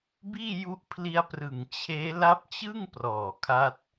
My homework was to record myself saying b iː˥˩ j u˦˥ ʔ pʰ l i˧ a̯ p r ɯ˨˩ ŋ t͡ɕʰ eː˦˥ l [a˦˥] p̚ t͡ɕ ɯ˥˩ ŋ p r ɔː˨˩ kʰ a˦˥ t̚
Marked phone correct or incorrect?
correct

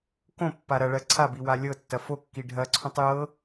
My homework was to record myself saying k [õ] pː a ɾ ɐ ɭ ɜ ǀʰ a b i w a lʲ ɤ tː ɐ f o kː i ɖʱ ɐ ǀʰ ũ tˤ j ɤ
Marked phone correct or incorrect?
correct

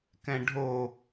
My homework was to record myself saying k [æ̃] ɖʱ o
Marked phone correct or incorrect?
incorrect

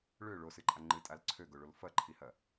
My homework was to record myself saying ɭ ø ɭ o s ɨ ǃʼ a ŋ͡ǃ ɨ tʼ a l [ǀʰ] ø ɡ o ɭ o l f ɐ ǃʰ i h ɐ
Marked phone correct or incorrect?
correct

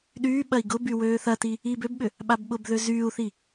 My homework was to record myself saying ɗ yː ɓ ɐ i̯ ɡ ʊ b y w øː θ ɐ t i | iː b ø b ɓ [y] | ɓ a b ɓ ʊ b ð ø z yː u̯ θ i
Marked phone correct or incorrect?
incorrect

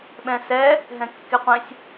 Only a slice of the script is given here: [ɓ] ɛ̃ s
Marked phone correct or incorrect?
correct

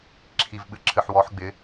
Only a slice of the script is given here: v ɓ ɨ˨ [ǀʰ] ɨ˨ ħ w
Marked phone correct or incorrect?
incorrect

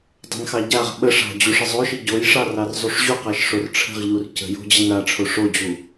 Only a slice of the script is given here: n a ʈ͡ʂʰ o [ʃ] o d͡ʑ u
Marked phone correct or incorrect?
incorrect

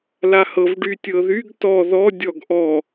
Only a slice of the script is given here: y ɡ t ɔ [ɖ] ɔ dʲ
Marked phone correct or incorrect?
incorrect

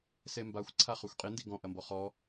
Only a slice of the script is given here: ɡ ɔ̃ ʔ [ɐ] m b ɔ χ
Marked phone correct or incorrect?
correct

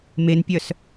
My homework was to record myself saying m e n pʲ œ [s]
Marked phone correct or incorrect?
correct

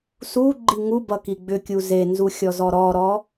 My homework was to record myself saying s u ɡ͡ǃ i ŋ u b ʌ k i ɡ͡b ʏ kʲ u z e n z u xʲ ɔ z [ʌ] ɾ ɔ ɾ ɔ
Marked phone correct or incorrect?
incorrect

